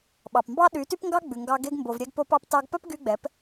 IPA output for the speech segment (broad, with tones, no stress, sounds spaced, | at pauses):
ɓ ɑ˨ p m b ɑ˦ ɗ y˨˦ t y˦ p ŋ ɡ ɑ˦ ɡ͡b ʉ˨ ŋ ɡ ɑ˧ ɡ e˧ ɡ m b o˨ v ɾʲ ɛ˧ ɡ p o˧ p ɑ˧ p t ɑ˧ ɡ p œ˦ p ɡ y˧ ɡ͡b ɛ˨˦ p